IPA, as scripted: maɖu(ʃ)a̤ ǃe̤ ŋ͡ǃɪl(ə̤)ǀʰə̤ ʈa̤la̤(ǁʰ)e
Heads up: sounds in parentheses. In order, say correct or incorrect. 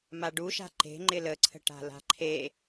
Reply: correct, incorrect: ə, incorrect: ǃʰ

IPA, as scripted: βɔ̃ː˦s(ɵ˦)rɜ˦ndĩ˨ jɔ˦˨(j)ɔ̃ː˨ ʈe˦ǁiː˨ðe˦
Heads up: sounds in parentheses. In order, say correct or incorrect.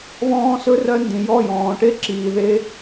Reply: correct, correct

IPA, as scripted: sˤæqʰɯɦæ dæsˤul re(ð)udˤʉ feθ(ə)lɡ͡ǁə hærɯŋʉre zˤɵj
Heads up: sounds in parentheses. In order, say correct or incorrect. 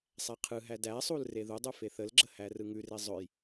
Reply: correct, correct

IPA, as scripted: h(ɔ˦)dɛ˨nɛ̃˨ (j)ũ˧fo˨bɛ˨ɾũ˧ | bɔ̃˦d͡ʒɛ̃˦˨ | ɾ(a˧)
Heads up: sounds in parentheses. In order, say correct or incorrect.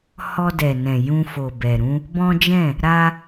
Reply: incorrect: ɔ˧, correct, correct

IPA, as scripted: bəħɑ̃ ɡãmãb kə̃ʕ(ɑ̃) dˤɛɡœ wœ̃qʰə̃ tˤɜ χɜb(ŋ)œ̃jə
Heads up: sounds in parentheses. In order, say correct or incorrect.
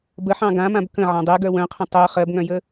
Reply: correct, correct

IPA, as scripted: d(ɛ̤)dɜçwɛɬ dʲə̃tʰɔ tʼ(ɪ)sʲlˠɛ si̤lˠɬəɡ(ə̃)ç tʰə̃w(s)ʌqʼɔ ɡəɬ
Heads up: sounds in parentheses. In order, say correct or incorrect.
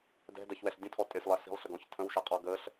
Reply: correct, correct, incorrect: ɔ̃, incorrect: ʃ

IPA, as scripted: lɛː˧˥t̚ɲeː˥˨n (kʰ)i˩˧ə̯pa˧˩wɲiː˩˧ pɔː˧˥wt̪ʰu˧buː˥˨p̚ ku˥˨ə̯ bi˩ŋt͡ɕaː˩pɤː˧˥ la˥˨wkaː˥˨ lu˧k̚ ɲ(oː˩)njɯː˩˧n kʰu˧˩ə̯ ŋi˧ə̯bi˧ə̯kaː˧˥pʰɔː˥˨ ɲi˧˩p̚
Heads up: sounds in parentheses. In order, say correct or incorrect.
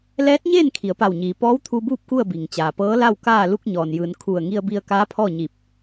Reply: correct, incorrect: ɔː˩

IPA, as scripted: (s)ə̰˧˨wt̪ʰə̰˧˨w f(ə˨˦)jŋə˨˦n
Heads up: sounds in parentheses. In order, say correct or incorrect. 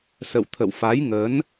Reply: correct, incorrect: a˨˦

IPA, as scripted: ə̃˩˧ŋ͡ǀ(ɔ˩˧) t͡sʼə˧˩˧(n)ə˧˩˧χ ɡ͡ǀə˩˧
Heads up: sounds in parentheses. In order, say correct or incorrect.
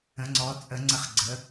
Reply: correct, incorrect: ŋ͡ǀ

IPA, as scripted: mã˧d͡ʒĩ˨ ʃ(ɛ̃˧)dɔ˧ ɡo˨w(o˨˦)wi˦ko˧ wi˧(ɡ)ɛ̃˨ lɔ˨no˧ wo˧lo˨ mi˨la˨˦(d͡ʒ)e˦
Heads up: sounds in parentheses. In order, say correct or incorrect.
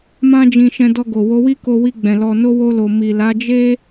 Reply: correct, correct, incorrect: ɡ͡b, correct

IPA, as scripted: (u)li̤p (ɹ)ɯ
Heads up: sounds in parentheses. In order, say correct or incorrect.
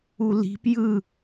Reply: correct, incorrect: j

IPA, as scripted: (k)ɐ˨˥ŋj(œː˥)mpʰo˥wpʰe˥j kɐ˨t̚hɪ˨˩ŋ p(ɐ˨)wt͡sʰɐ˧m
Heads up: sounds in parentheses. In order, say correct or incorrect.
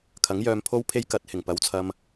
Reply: incorrect: kʰ, incorrect: œː˧, correct

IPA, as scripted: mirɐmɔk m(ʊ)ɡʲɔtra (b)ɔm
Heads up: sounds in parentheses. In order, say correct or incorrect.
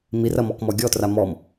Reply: incorrect: ɔ, incorrect: m

